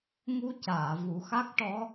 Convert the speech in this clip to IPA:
ŋ u˧ c aː˨˩˨ v u˨˩˦ x a˦˥ k̚ ʈ ɔ˧˥

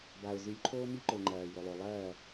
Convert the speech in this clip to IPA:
b a˩ ʊ̯ z ʉ˩˥ lʲ ǃʰ oː˥ m i˥ ǃ ɵ˩ ŋ͡ǃ ɐː˩ j ɵ˩ lˠ o˩ lˠ ɐː˥˩

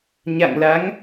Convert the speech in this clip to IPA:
ɲ a̰˧˨ ŋ l a˨˦ ŋ

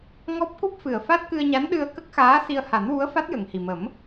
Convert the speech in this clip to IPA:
ŋ ɔ˦˥ p̚ k u˦˥ p̚ f ɨ˨˩ ə̯ f a˦˥ t̚ k ɨ˧ ə̯ ɲ a˧˥ n ɗ ɨ˧ ə̯ k ə˦˥ k̚ x aː˧˥ s i˧ ə̯ h a˨˩˦ n w u˧˥ ə̯ f a˦˥ t̚ j ə˨˩ ŋ h i˨˩ m ə˨˩˦ m

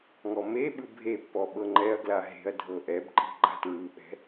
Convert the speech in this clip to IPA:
ŋ ɔ m e ɓ ɯ bʱ e pː ɔ ɓ ɤ ŋ͡ǃ ɛ ɐ̯ ɡ l a ɦ e̤ ɐ̯ dʱ ɤ ʔ ɛ b ǃ i̤ ɡ͡ǃ a̤ t ɹ ɯ ɓ ɛ̤

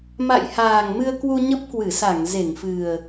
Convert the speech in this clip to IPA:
m a̰˧˨ j h aː˨˩ ŋ m ɨ˧ ə̯ k w u˧ ɲ ə˦˥ p̚ k w ɨ˧˩ s a˧˩ ŋ z e˧˩ ŋ f ɨ˨˩ ə̯

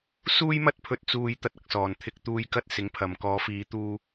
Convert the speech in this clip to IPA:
s uː˥ j m ɐ˥ t̚ pʰ ɵ˧ t̚ t͡s uː˧ j t̪ ɐ˥ t̚ ɐ˧ k̚ s ɔː˨ n t̪ʰ ɪ˧ k̚ t̪ uː˧ j k ɐ˥ t̚ s ɪ˨˥ ŋ pʰ ɐ˨ m k ɔː˨˧ f iː˨˧ t̪ uː˧

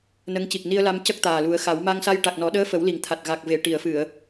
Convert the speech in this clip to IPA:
n ə˧˥ ŋ c i˨˩ k̚ n i˧ ə̯ l a˧ m c ə˦˥ k̚ t̪ aː˨˩ l u˨˩˦ ə̯ x a˨˩˦ w m a˧ ŋ s a˧ j ʈ a˨˩ k̚ n ɔ˨˩˦ ɗ əː˧˥ f ə˨˩˦ w l i˨˩ ŋ t̪ʰ a˨˩ t̚ ɣ a˨˩ k̚ v e˨˩˨ ʈ i˨˩˨ ə̯ f ɨ˨˩˨ ə̯

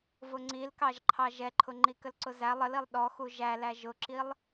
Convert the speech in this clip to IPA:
v ʊ ŋ͡ǀ i l k ɑ ʒ ǃʰ ɑ ʒ ɛ ǃʰ ʊ ŋ͡ǃ i k ə l ǀ ʊ z æ lˠ ə l i lˠ ɗ ɔ x u ʒ æ l æ ʒ ʊ ǁ i lˠ

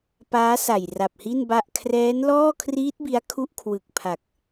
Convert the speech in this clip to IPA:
p aː˦˥ s a˨˩ j r a˨˩ p̚ h i˥˩ n b a˥˩ ʔ kʰ r ɛː˦˥ n l ɔː˥˩ kʰ r iː˦˥ t̚ b i˦˥ a̯ kʰ u˥˩ ʔ kʰ w ɯ˨˩ k̚ pʰ a˨˩ k̚

